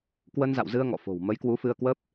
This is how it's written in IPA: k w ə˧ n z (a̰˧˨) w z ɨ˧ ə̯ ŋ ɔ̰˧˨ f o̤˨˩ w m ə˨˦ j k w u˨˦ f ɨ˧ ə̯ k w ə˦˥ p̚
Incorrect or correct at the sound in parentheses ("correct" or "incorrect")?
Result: correct